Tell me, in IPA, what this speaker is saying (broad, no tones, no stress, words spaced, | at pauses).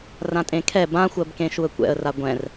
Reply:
rãtʼẽkʰɛ bãxʷɜbkẽ ʃuə̯kʷɛ̰ə̯ra ɡʷɛ̃r